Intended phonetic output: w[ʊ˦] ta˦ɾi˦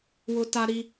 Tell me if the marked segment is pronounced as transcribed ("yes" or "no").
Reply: yes